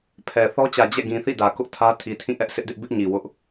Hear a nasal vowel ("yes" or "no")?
yes